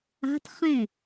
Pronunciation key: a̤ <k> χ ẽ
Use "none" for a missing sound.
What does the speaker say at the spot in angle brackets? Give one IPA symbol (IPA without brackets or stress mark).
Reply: t